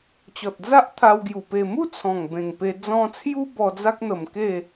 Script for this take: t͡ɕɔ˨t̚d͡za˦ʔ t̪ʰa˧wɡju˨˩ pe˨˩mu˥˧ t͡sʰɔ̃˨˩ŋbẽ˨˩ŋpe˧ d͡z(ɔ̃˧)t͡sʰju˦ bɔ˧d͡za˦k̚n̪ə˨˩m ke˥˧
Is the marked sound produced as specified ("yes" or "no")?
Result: yes